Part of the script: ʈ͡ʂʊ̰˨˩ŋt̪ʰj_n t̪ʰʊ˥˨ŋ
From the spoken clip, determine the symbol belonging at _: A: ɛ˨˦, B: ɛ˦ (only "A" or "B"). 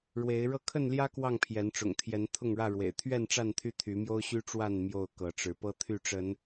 A